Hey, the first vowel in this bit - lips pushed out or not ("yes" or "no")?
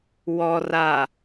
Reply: yes